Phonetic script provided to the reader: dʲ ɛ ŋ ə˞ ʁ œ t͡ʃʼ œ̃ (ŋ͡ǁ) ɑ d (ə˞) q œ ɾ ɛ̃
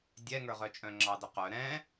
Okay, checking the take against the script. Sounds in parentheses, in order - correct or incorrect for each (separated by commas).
correct, incorrect